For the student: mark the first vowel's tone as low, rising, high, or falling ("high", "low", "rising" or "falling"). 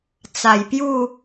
low